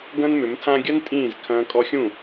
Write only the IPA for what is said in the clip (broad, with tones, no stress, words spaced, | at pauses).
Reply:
ɡɐ̃˦nmʏ˨˦mtʰã˦ ɡʲɐ˦n tʼĩː˦˨zkʰɐ̃ː˧ kʼɔ˧xʲũ˦˨